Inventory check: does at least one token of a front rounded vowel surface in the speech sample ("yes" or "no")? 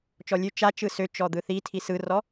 yes